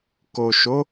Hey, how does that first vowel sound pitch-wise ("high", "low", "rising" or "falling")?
low